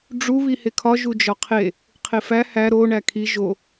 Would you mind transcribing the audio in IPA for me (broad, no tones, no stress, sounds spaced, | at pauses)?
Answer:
ɖ͡ʐ u β i h e kʰ ɒ ʒ u d͡ʒ ɒ qʰ e | qʰ e f æ h æ ɾ o ɳ æ kʰ i ʒ o